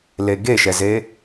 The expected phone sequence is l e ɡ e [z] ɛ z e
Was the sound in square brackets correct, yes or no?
no